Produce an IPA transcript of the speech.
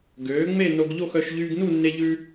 ɡ øː˩˥ ŋ͡m e˥˨ n o˧ ɡ ʎ o˥˨ x œ˩˥ ʃ ʎ yː˧ ɡ n u˥˨ nː e˧ ʎ ʉ˧

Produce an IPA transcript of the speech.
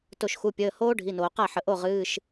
t o˧˩ ʃ x u˩˧˩ pʲ əː˩˧˩ h oː˦˥ ɖʱ i˩˧˩ n oː˩ q a˥˩ ħ ə˩ ʔ o˥˩ ʁ ɨː˩˧˩ ʃ

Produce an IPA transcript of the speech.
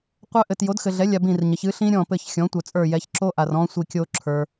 qʷ œ˦˥ ʔ ɘ˨ t j o˩˥ d x ɘ˨ ɮ ɛ˩˥ lʲ a˨ b ĩ˦˨ r ɲ ə˩˥ ç ɨ˩˥ ɬ ĩ˦˥ ɾʲ ɔ̃˦˨ p ɘ˦˨ ç xʲ ɔ̃˩˥ tʷ œ˨ t͡sʼ ə˞˦˨ j ɛ˨ ç ǁ o˦˥ ʔ a˨ r ɔ̃˦˥ sʷ i˦˨ kʲ o˦˥ ǁʰ ə˞˨

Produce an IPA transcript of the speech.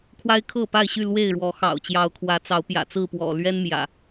kʰ w a˦ ɪ̯ kʰ ɤ˥˨ p a˥˨ ɪ̯ ɕ y˥˨ l w e˥˨ ɪ̯ ɻ w ɔ˨˦ x ɑ̰˨˩ ʊ̯ t͡ɕ j ɑ˨˦ ʊ̯ kʰ w ä˨˦ t͡s ɑ˨˦ ʊ̯ p j ä̰˨˩ t͡s ɹ̩˥˨ p w ɔ̰˨˩ l ɥ ɛ˦ n m j ä̰˨˩

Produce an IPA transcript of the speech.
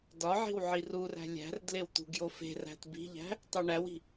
d ɒ ʕ i̤ w ʕ i r u r æ̤ lʲ æ̤ r d l e w t̪ ṳ ɡ j o f e̤ r æ̤ t b i̤ ʎ æ̤ | tˤ u ɳ æ w i̤

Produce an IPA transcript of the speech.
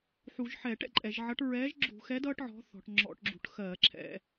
ħ u˧˩˧ ʒ ħ ɛː˧˩˧ ʈ ɛ̰˩˧ ǃʼ ɛ˧˩˧ ʒ ʕ ʌ˨˥ ʈ ɹ ɛː˨˥ ʒ ɡ͡ǁ ṳ˧˩˧ x ɛ˨˥ d ʌː˨˥ ʈ ʕ ɔ̤˨˥ θ ɔ̤˩˧ ʈ ŋ͡ǁ ɔ̰˧˩˧ ʈ ɡ͡ǁ ṳ˧˩˧ ʈ x ɜː˧˩˧ ǁʰ ɛ̰˧˩˧

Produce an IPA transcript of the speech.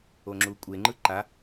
o ŋ͡ǁ u kʷʼ e ŋ͡ǃ ɯ ǃ a

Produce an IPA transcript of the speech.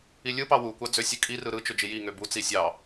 i lʲ ɯ p ɑ w u kʷ ɑ d͡z ø sʲ ɯ kʼ i r ɯ ɾ ɯ t͡ʃ ø d͡ʒ i j i ŋ ø b u t͡s i sʲ ɑ

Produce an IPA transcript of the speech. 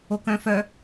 o k œ̃ f œ

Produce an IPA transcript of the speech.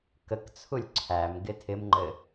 k ə k t͡sʰ u lʲ ǀʰ æ m ɡ ɪ tʰ ɪ m ŋ͡ǃ ɘ

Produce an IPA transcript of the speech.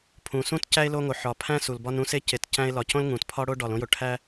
pʰ ũ˨ s ũ˥ t c æ˥ e̯ l o˦ ŋ o˨ ħ ɒ˨ pʰ æ̃˥ s u˨ l b ɒ˥ n ũ˦ s e˥ c e˨ t c æ̃˥ e̯ l ɒ˨ c õ˥ l ŋ ũ˩ t pʰ ɒ˥ ɽ o˥ ɖ ɒ˨ l õ˥ j o˨ ʈʰ æ˥

